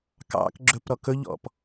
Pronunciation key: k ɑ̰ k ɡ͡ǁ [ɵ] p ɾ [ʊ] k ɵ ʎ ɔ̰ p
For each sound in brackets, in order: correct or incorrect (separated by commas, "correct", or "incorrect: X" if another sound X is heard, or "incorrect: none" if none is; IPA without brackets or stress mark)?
correct, incorrect: ɔ